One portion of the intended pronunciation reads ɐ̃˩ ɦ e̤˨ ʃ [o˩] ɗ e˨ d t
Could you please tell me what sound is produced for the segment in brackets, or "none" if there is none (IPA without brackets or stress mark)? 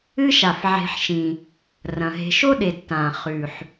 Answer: o˥